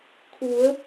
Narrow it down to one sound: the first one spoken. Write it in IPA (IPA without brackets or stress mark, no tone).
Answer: kʰ